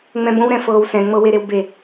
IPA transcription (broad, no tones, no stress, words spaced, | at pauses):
ŋ͡mɛ̃bõwɾɛ̃ fɤːwsɛ̃ŋ͡mɤwe ɾewbe